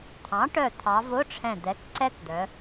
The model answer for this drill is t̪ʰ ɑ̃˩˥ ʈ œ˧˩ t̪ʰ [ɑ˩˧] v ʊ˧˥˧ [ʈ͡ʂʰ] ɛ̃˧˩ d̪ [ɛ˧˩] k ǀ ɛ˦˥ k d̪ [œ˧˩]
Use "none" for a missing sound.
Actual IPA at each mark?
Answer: ɑ˩˧, ʈ͡ʂʰ, ɛ˩˥, œ˩˧

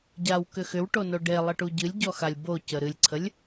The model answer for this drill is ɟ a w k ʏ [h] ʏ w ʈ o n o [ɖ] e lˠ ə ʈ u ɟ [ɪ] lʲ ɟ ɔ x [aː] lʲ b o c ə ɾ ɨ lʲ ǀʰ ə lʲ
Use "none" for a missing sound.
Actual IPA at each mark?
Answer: x, ɖ, ɨ, a

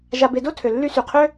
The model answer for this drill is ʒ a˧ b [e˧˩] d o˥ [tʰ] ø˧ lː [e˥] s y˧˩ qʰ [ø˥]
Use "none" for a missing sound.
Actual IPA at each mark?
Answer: e˧, tʰ, y˥, ø˥

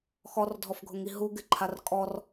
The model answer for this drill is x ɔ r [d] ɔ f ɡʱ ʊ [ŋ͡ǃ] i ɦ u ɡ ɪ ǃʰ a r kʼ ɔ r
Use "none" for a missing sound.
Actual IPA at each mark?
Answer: dʱ, ŋ

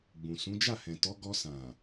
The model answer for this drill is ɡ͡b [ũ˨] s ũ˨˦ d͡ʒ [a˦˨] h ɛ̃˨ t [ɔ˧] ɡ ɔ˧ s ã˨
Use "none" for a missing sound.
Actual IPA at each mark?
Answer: ũ˨, a˦˨, ɔ˨˦

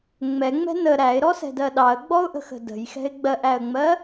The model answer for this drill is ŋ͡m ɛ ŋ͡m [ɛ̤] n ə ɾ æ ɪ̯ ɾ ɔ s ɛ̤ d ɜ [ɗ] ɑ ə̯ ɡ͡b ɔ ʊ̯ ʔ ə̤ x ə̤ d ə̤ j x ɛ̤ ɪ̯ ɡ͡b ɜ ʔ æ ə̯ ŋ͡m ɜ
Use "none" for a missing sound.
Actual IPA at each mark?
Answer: ɛ̤, ɗ

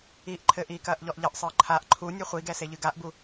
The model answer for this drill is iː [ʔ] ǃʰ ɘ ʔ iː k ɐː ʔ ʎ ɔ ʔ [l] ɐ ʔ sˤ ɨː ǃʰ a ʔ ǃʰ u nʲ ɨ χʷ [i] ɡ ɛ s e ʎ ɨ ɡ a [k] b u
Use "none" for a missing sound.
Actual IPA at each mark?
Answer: ʔ, ʎ, i, ʔ

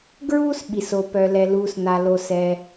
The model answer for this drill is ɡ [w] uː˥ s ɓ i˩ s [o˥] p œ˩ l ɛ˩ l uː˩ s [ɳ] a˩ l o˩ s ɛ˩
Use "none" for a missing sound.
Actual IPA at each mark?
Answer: ɹ, o˩, n̪

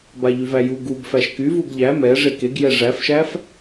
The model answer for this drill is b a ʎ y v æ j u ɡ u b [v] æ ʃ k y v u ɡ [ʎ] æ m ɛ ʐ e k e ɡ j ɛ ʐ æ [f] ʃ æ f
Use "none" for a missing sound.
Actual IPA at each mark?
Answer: f, ʎ, f

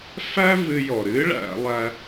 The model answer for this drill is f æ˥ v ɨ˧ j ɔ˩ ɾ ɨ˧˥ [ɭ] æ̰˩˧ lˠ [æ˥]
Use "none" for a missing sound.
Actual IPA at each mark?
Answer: ɭ, æ˧

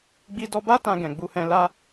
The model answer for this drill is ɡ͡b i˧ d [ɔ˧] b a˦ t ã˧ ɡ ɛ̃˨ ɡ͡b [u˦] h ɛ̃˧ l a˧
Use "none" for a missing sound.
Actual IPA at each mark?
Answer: ɔ˧, u˧

